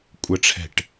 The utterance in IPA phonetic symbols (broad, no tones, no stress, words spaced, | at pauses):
kʷʼəʈ͡ʂʰɛ̤ʈ